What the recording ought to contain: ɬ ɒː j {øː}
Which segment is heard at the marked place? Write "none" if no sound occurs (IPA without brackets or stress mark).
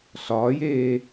eː